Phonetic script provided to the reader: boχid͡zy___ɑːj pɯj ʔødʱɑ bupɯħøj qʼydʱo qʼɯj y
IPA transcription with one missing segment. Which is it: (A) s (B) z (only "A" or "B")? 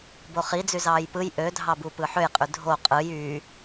B